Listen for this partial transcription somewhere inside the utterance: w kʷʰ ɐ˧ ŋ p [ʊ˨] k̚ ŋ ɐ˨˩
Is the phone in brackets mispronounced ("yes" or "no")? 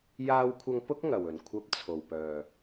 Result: yes